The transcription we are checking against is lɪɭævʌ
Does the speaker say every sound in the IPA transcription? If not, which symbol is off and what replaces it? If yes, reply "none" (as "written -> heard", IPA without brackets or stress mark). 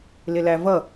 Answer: ɭ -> l